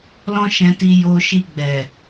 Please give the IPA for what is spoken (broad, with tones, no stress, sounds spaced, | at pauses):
l ɔ̃˦ ʃ ɛ̃˧ t i˧ j o˧ ʃ i˧ ɡ͡b ɛ˨